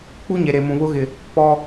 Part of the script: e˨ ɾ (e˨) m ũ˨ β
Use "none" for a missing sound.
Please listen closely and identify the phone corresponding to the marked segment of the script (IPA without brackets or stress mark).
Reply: e˨